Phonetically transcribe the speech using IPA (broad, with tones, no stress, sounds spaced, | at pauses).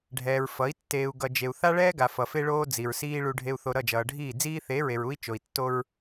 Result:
ɖʱ ɛː˨ ɹ f ʌ˨˦ i̯ tː eː˨ u̯ ɡ ʌ˨ d͡ʒ e˨ u̯ θ a˦ ɭ ɛː˦ ɡ a˨ f ʌ˨ f e˦ ɭ oː˦ d͡z i˨ ɹ s iː˦ ɭ u˦ ɖʱ e˦ u̯ θ o˦ ɾ ʌ˦˨ d͡ʒ ʌː˨ ɖʱ iː˦˨ d͡z iː˦ θ e˨˦ ɹ e˨ ɹ u˦ i̯ t͡ʃ o˨ i̯ tː o˦ ɹ